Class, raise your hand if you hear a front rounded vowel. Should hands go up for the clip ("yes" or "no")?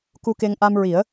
no